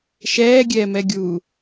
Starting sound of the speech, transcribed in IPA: ʃ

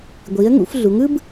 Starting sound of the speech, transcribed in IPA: ɡʷ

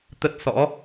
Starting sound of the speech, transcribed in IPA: t̪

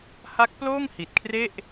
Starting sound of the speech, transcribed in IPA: h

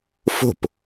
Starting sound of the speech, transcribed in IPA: f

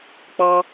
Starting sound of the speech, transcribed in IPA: k͡p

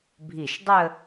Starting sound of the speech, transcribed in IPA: bʱ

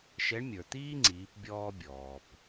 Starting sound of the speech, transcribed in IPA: ʃ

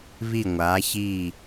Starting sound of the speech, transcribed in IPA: β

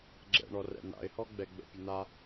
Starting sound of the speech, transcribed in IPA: ɡ͡ǁ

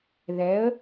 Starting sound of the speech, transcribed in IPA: ð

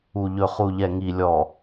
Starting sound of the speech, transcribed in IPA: u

